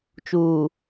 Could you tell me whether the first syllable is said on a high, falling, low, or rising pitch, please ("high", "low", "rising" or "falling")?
low